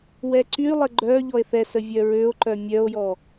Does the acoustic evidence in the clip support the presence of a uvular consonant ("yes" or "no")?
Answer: no